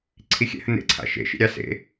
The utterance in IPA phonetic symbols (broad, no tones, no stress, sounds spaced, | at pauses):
ǀʰ i xʲ ɛ̰ h ə n ḛ ǀʰ a̰ ʃ ḛ ʃ ḭ ɾʲ ɑ s ḛ